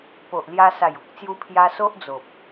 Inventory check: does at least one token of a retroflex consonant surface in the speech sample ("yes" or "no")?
no